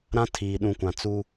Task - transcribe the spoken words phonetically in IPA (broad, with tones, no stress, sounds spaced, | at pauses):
ɾ ã˦ tʰ iː˨ ɗ ũ˨ kʷ ã˨ t͡s u˦